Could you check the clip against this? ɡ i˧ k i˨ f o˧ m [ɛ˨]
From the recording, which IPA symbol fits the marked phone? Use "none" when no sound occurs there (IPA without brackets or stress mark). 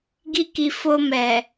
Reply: ɛ˨